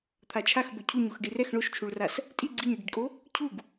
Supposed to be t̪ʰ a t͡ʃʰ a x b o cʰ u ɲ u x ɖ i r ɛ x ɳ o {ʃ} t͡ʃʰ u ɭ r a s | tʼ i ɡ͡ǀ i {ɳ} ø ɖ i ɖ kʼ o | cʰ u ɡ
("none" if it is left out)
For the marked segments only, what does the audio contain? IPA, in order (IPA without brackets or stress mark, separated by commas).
ʃ, ɲ